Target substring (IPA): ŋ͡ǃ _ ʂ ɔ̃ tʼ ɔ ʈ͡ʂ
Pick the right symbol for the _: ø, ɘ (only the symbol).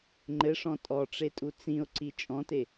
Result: ɘ